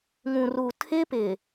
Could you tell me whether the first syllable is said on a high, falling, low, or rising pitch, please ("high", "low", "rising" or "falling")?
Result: low